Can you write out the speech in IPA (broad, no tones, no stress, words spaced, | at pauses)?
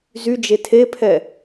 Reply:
zyd͡ʒe tʰepʰɛ